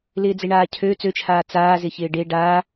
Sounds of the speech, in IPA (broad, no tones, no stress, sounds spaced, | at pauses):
l ɪː d͡z ɪ ɳ aː cʰ ø t͡s ø t͡ʃʰ aː t͡s aː z ɪ ç ɪː ɖ e ɖ aː